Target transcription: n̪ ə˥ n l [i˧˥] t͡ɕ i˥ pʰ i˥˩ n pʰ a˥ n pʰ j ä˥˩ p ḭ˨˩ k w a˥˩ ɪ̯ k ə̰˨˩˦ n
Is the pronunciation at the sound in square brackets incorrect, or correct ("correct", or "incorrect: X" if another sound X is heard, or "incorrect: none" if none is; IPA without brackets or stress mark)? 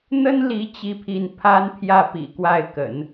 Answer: correct